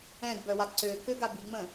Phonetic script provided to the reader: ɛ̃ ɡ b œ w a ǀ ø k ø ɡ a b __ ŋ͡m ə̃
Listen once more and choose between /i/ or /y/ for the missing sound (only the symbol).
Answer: i